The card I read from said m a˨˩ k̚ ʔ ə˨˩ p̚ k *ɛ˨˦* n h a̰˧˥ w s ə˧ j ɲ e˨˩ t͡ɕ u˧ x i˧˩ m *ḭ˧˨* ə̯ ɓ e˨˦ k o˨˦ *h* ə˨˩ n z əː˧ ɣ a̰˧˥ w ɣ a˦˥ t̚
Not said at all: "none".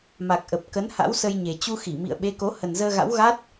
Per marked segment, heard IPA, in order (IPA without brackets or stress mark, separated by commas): ə˨˦, ḭ˧˨, h